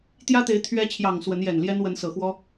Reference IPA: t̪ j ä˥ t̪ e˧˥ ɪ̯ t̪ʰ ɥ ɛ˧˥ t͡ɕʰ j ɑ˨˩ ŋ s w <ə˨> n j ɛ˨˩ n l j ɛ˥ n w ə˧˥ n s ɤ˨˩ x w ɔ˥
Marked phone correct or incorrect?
incorrect